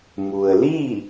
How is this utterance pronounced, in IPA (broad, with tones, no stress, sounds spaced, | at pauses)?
m u˩ ə̯ l i˥˨